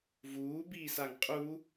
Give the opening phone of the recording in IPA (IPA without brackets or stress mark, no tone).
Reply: v